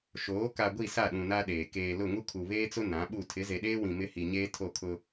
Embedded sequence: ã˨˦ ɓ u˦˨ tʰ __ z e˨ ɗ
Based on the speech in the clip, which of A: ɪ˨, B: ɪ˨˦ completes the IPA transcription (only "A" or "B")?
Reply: B